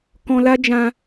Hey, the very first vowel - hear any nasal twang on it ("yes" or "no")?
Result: yes